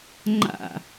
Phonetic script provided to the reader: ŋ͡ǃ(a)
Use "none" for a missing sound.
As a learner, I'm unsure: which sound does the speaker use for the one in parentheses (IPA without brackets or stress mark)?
a̰